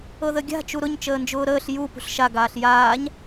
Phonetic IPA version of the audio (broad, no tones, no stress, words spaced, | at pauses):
ɤðəɡʲa̤ t͡ʃuɾʊɲ t͡ʃəːnd͡ʒʊːɾəːɬ ju pṳɬʃa ɡaːɬjaːɲ